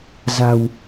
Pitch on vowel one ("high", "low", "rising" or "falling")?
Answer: low